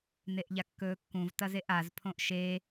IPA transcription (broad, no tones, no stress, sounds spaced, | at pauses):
n e ʔ ʎ a kː ɵː kː ũ v t ɐ z e ʔ a z pʰ õ ʔ ʃ e